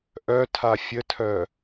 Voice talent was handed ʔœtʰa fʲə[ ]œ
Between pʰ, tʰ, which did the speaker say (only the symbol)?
tʰ